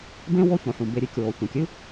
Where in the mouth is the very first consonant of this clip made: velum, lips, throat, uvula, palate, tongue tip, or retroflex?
lips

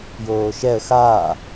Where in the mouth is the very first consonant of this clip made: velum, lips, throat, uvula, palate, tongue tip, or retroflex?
palate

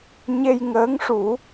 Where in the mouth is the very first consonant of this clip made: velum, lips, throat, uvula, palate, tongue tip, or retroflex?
palate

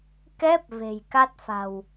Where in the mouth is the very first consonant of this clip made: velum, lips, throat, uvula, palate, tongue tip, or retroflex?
velum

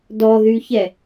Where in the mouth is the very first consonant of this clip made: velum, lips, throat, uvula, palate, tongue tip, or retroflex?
tongue tip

